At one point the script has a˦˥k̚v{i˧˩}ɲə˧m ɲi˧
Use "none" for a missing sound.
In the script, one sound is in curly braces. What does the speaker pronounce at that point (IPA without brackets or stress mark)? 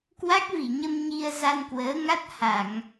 i˧˩